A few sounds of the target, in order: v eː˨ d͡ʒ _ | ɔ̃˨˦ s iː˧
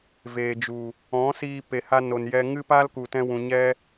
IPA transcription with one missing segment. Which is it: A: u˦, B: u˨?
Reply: B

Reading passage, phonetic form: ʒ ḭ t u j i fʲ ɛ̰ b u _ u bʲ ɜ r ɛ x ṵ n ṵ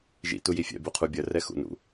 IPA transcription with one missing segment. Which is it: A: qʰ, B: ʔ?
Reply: A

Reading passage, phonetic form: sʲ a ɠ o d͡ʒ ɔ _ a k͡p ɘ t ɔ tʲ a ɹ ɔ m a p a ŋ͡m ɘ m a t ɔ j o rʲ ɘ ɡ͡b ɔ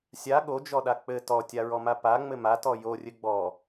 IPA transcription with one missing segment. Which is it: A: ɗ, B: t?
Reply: A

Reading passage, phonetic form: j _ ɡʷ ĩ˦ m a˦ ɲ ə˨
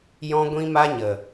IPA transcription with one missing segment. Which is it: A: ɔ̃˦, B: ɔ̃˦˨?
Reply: A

